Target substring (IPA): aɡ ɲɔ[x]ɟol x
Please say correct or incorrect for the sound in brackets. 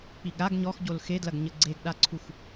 correct